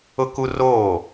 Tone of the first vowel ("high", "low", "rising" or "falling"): high